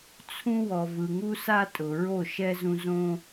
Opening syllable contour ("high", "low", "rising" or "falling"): high